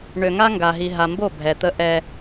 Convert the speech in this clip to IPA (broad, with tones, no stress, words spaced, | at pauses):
ɳø˨ŋa˦ŋɡa˨ɦi˨ ɦa˨mbo˦˨ bʱɛ˨ t̪ə˦ ʔɛ˦